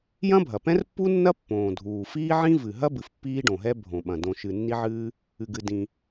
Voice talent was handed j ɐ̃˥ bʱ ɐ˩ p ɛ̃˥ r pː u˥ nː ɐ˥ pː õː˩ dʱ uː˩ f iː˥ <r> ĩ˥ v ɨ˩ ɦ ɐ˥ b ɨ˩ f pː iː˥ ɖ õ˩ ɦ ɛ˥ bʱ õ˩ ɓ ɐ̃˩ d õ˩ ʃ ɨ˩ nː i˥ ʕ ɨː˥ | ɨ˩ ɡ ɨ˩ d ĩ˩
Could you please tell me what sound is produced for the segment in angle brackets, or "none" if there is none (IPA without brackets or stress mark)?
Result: ʕ